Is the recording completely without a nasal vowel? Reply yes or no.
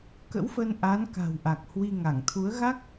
yes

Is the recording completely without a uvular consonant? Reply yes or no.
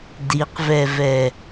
no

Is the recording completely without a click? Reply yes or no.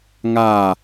yes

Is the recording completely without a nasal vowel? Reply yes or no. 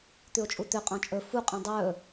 no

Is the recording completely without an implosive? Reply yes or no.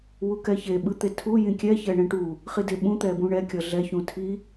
no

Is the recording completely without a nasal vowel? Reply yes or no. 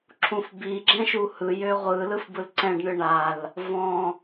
no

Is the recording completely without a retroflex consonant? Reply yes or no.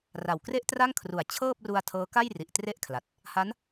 yes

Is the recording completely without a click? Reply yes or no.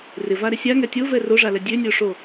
yes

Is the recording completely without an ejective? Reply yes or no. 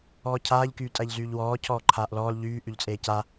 no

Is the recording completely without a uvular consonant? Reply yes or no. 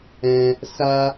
yes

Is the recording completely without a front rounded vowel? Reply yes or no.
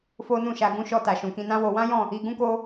yes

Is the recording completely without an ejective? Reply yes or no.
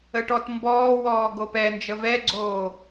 yes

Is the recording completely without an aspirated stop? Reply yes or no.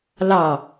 yes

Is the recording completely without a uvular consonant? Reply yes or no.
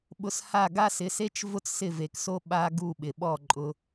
yes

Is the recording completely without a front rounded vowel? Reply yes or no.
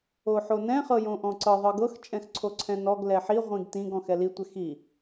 yes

